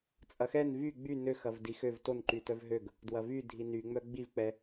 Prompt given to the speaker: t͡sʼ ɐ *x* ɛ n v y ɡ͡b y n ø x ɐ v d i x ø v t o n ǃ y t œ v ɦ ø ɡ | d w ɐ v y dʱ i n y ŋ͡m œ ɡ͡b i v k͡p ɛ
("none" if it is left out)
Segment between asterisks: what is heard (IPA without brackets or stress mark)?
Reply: x